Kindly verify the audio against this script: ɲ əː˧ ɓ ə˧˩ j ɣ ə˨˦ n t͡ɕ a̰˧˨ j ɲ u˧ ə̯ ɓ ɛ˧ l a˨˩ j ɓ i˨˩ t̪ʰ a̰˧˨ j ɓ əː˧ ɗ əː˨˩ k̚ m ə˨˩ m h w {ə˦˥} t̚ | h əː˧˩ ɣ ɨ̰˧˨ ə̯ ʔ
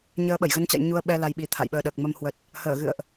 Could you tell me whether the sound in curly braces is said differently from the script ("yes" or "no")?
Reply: yes